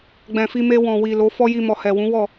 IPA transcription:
ɡ͡bɛ̃˨fi˧me˧ wɔ̃˨ wi˨ lo˨˦fɔ˦ji˧mɔ˨ hɛ˨wũ˨˦wɔ˦˨

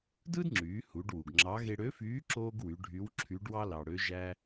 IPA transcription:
dɯ˥dŋ͡ǁyː˩˧ hu˩˧ɖwu˩ɡŋ͡ǁɑ˧˥ ɣe˧ɽø˧˥fyː˧˥ ǁoː˥ɡwy˩˧ ɖʱy˧˥wǁʰy˧˥ɖwɑ˥ lɑ˩ɽø˧˥ʒæ˥

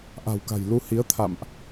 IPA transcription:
ʔa̤˨˩wka̤˨˩j lu˧hi˨˦ə̯t̪ʰa̰˧˨mʔ

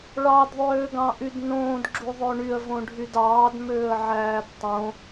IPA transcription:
ɭɑdðˤøːɡɑ̃ʔyd nõːdɡ͡ǁuðˤø ɳyə̯võɖʱyd ɑːdmøːə̯ʕæːd tˤõ

